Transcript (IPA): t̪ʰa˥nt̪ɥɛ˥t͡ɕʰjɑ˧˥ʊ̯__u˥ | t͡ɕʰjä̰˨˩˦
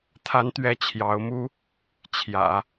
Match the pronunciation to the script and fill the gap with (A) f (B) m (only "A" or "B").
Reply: B